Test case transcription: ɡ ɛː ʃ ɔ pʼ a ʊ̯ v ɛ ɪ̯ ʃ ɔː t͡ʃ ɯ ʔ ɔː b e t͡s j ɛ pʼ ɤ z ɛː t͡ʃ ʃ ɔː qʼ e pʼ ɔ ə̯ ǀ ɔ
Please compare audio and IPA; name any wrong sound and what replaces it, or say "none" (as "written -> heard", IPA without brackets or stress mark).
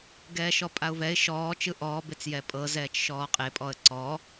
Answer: none